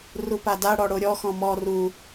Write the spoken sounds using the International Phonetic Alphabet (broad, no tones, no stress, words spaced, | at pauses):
rupada ɽɔɽoɾʲɔ xɔ̃mɔ ru